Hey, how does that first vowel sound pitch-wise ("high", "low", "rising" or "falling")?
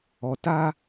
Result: low